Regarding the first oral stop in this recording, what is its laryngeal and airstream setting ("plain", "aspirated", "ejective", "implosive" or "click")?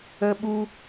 implosive